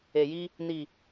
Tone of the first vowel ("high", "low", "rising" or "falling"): low